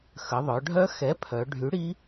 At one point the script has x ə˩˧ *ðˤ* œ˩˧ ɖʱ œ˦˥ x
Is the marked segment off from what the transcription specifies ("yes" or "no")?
no